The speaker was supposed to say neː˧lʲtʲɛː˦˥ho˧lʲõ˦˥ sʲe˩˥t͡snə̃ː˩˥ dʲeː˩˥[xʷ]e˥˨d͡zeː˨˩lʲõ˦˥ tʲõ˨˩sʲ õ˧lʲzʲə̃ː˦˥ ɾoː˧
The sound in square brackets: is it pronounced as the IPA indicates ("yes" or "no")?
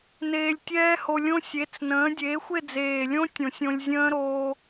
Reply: yes